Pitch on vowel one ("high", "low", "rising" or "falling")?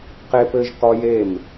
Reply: high